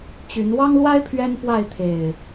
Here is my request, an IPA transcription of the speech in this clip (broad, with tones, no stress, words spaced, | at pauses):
t͡ɕy˨˦n wɑ˦ŋlwa˦ɪ̯ pʰɥɛ˦npwa˥˨ɪ̯t̪ʰe˨˩ɪ̯